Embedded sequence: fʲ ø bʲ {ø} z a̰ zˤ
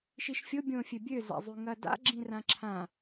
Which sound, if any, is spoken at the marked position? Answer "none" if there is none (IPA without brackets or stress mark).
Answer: ø